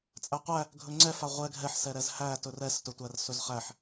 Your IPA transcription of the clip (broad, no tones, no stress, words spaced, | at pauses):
t͡sʼæqʷæ | ɡʱɵŋ͡ǀɛfa ʁʷɛ ɡʱɛħsɛ ɾɛzhæ tɵrɛstɵtʷær sɵzχæħ